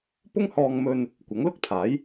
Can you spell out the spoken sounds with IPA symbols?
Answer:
p ʊ˥ ŋ h ɔː˧ ŋ m ɵ˧ n | kʷ ɐ˨˥ ŋ l ʊ˥ k̚ t̪ʰ aː˨˥ j

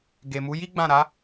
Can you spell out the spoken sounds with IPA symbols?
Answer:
ɡ e˨ m u˨˦ j i˦ ɡ͡b ã˦˨ ɾ a˨˦

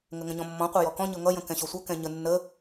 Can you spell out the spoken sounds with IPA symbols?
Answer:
ŋ ə ŋ ə̃ ɲ ɔ̃ mː ɔ̃ qʷ ɛ j ɔ k ɔ̃ ɲ ɤ ŋ ʌ j ə̃ k ɛ̃ ɕ ɔ sʷ ʌ k ɛ̃ ɲ ə nː ə

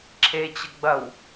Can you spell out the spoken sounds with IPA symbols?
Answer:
ǁʰ e t͡ɕ ə ɡ͡b ɐ w

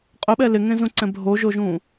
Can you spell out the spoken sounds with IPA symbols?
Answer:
qʼ œ ɓ ɛ l ɪ ŋ ẽ z ũ ǀ ɛ̃ bʱ o ʒ o ʒ ũ

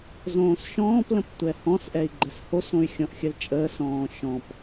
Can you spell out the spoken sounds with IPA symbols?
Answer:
z õː s ʃ ɔ̃ː p l ə̃ p tʷ ɛ h ɔ̃ s ʔ ɛ i̯ ɡ͡ǃ ɛ s h o s õ y̯ xʲ ɔ̃ ʔ xʲ ə l t͡ʃʼ əː s ɔ̃ː ʃ ɔ̃ p

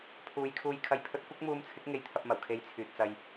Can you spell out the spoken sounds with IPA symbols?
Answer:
pʰ uː˨˧ j kʰ uː˧ j kʰ ɐ˧ j pʰ ɵ˥ t̚ kʷ ɐ˥ k̚ m uː˧ m t͡sʰ ɪ˨˥ k̚ ŋ e˧ j t̪ʰ ɐ˧ p̚ m ɐ˨˩ w kʰ e˧ j t͡sʰ yː˨ t̚ t͡s ɐ˧ j

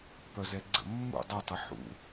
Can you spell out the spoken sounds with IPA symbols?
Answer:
p œ z ɛ ɡ͡ǀ ə̰ mː ṵ dˤ œ tˤ ɛ ħ ṵ

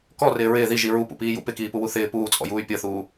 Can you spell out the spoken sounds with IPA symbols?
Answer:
k ɔ r ɪː ɹ ɪː ð i ʒ i ɹ u p ṵ p iː j ṵ p ɪ k iː p u w u θ ɪː p uː t͡sʼ ɔ̰ j uː y̯ pʲ ɤ θ uː

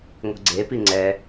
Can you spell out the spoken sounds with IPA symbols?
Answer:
ŋʷ i̤ ɡ͡ǀ e p i ŋ͡ǀ ɛ

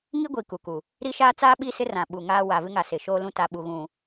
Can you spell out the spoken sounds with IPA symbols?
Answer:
ŋ i˦ ɡʷ i˨ k u˨ k u˨ | ɾ i˦ ʃ aː˦ t͡s aː˦ ɓ i˦ s ɪ˦ r ã˨ ɓ u˨ ŋ aː˦ w a˨ v ɪ˦ ŋ a˨ s ɪ˨ ʃ oː˦ l ũ˦ t a˨ ɓ u˨ ɣ ũ˨

